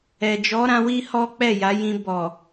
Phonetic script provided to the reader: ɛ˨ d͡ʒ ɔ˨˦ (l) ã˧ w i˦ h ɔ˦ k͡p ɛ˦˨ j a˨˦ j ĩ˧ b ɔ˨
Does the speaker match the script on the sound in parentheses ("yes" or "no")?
no